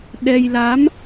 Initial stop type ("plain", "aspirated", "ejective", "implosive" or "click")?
implosive